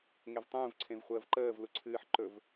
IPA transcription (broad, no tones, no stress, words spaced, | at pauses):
ŋevtˤũːv ǀʰẽvχʷəːvǃəːv luǀʰɨːħǃɵv